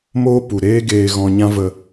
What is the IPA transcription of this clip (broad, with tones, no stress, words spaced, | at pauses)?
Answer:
moː˦ pu˨ɾeː˦ɡeː˧ ɣɔ̃˧ɲã˦ və˧